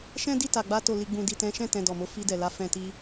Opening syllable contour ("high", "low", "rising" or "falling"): high